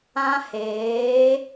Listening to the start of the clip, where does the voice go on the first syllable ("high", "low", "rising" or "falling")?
high